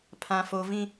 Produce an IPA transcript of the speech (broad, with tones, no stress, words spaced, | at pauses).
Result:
pʰã˦fo˦ vĩ˦